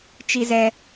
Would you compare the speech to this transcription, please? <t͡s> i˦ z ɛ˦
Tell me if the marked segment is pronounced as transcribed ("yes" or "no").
no